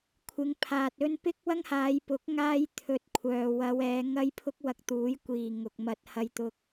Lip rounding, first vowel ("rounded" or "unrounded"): unrounded